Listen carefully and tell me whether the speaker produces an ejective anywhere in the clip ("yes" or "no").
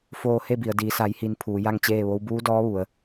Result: no